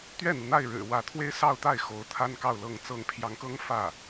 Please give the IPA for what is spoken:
t̪ ɥ ɛ˥˩ n̪ u˩ n̪ a˥˩ ɪ̯ ɻ ɻ̩˨˩ w ä˧˥ t̪ʰ w e˥ ɪ̯ s ɑ˥˧ ʊ̯ t̪ a˥˩ ɪ̯ x o˧˥ ʊ̯ t̪ʰ a˥ n k ɑ˥˧ ʊ̯ l ɤ˥˩ ŋ t͡s ɤ˧˥ ŋ pʰ j ɑ˧˥ ŋ k ɤ˥ ŋ f ä˥˩

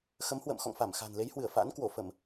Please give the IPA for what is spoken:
x ə˨˦ m h w ə̰ː˧˨ m x ɔ̰˧˨ ŋ f a˧˩ m x a̤˨˩ n l e˨˦ j h w ɨ˧˩ ə̯ f a̰ː˧˥ n k w o˧˩ f ə˧˩˨ m

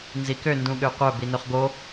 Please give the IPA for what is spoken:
n z i k ø n d ũ ɠ ø qʷ œ b i n ø χ ɡ o

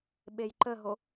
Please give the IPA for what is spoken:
ɓ e j ǃ ə ɦ o

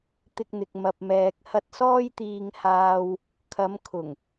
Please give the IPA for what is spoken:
t̪ ɪ˧ k̚ n̪ ɪ˨ k̚ m ɐ˨ p̚ m ɛː˨ k̚ h ɐ˧ t̚ s ɔː˥ j t̪ iː˧ ŋ h aː˧ w | kʰ ɐ˨˧ m kʰ ʊ˨˩ ŋ

